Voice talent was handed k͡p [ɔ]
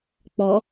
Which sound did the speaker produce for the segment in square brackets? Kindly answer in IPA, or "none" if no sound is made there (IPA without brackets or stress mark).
ɔ